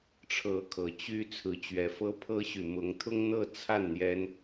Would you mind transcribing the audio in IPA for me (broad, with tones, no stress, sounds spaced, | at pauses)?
ʈ͡ʂʰ ɤ˨˦ kʰ ɤ˨˦ t͡ɕ y˦ t͡sʰ ɹ̩˨˦ t͡ɕ ɥ ɛ˨˦ f ɤ˦ pʰ ɤ˦ ɕ y˨ m ʊ˨˦ ŋ t̪ʰ ʊ˦ ŋ n̪ ɤ˥˨ t͡sʰ a˥˨ n n̪ j ɛ˦ n